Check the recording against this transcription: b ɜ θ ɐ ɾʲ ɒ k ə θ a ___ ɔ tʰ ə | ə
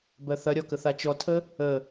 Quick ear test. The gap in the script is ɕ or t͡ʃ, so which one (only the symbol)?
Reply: t͡ʃ